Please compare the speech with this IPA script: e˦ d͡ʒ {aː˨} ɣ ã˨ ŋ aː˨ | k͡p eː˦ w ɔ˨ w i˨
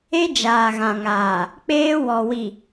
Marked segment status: correct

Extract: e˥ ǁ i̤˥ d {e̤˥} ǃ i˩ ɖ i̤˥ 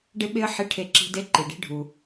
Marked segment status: incorrect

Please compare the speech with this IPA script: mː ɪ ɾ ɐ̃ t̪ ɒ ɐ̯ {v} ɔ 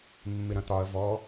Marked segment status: correct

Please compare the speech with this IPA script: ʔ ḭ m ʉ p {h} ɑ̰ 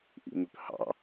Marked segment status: correct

